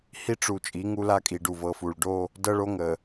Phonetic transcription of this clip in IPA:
hi˦ʈ͡ʂu˨ t͡ʃʼi˨˦ŋu˦la˦kʼi˨ ɖu˨vɤ˨fu˨ɭ ɖo˦ | dɤ˦ɭo˦ŋə˨

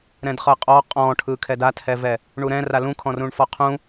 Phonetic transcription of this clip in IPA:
ɾɛ̃dχɤqʼɔ qʼɔ̃ʈʰɯkʰɛd athɛvɛ | ɳuɾɛ̃ra lũkʰɔ̃rũɳfɔ qʰũ

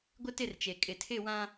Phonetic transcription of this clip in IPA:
ɡʷɪ˦tɪ˦˨rt͡ʃe˨ kʼɪ˨tʰɪ˦˨wã˦

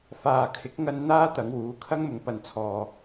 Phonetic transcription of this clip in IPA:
faː˨kʰɪ˨˥k̚ ŋɐ˧n n̪aː˥ t̪ɐ˨˧ŋwuː˨˥kʰɐ˥ŋmʊ˨˧ŋ pɐ˨nt͡sʰɔː˨

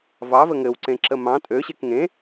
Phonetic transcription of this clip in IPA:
vɑvə ŋɘwǀẽǁə mɑ̃ tʼøɕek ŋẽ

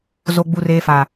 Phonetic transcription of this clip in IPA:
zo˨ɡ͡bu˨reː˨ faː˨

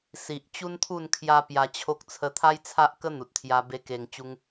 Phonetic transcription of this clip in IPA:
si˨ʔ t͡ɕu˦nt̪ʰu˥˧n kʰja˦pja˧t͡ɕʰo˦k̚ t͡sʰə˧t̪ʰa˦jt͡sʰa˦ʔkə˦ n̪u˨t̚t̪ʰja˧ be˦ke˧ŋt͡ɕu˦ŋ

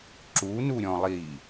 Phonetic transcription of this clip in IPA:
ǁunuɾʲɔ̃ lˠi

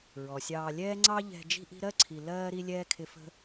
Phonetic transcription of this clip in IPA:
ɹɔ˩sʲɑː˨lʲɛː˦ŋ͡ǀɑ˦ ʎɛ̤˨ d͡ʒi̤˦ʔi̤˦ɾɜ˥ǀʰi˨ lɜː˥ ɾi˥lʲɛː˥kʰɪ˦ fə̤˥

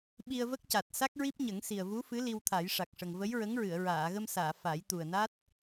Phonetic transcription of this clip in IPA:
ɓi˧ə̯və˦˥k̚ca˨˩t̚ sa˦˥k̚ɹi˦˥p̚ɲə˨˩˦ŋsi˨˩ə̯ vu˧˥fɨ˧˥ li˧wt̪ʰa˨˩˦jʂa˨˩k̚ʂə˨˩ŋ və˧˥jɹə˧˥ŋɹɨ˨˩˨ə̯ ɹaː˨˩˨ɣə˧msaː˨˩˨ fa˨˩˦jt̪u˨˩ə̯na˦˥t̚

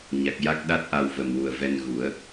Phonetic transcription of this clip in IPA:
ɲa˨˩k̚ja˦˥k̚ɗa˦˥t̚ʔa˧w və˨˩mwu˨˩ə̯vɛ˧n ɣu˨˩˦ə̯

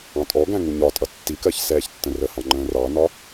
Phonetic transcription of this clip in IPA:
ɑ̃tʼɔɡæ̃ ŋuɲɒtʼʌ tːikɜç sɛːçtːə̃rəhɑ̃ ŋ͡ǃə̃ːrɑnɒ

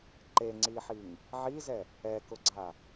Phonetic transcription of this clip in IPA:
ǃeŋ͡ǀiħiŋ | ʕizɛ | ɛkʊɡ͡ǀa

